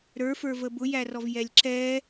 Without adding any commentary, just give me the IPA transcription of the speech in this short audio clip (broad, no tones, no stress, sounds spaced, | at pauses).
ɾ ə˞ f ə˞ v ə b ʊ j æ r ɔ v j ɛ lʲ ǁ ɛ